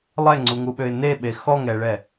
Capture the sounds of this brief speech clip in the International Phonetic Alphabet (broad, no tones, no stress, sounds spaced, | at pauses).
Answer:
lˠ ɛ ŋ͡ǀ u ŋ u ɓ ø ɪ̯ n e ɓ e x ɔ ŋ ɛ ɭ ɛ